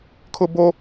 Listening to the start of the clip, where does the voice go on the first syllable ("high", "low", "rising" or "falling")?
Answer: high